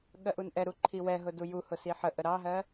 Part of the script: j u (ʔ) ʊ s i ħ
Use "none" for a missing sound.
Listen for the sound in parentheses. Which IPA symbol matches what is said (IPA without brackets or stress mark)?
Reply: h